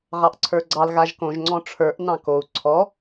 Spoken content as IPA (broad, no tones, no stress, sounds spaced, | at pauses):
ʁ ɑ ʔ ǀʰ ə˞ ɡ͡ǀ ɑ l ɣ a ʒ k õ ʒ ŋ͡ǀ ɔ̃ ʈ͡ʂʰ ə˞ ʔ n ɑ̃ k o u̯ ǀʰ ɔ